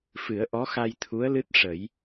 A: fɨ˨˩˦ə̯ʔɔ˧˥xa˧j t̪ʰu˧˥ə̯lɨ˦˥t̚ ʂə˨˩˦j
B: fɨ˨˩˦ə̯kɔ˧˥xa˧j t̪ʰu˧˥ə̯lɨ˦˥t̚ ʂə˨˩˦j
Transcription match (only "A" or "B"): A